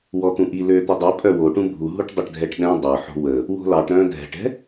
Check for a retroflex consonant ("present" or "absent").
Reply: present